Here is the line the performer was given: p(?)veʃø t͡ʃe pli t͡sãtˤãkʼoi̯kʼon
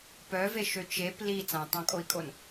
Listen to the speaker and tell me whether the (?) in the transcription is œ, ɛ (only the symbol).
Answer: œ